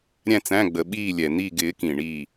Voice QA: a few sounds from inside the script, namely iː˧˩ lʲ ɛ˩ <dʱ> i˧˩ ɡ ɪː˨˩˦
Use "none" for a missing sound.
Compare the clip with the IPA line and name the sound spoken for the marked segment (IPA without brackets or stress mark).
n̪